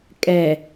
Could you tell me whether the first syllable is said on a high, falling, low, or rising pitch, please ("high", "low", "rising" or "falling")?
low